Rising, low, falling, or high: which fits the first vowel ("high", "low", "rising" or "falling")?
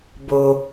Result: low